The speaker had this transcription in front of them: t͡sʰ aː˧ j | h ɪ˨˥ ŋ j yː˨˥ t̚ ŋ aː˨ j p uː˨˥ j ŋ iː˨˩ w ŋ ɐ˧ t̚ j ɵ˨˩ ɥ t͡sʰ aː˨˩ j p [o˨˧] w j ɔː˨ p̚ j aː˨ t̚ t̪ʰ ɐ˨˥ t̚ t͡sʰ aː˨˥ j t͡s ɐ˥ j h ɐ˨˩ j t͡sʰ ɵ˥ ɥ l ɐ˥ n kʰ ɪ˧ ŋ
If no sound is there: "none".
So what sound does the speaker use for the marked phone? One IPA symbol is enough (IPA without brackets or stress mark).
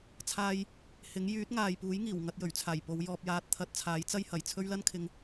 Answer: o˨˧